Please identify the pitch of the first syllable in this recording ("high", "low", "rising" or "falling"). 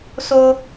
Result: high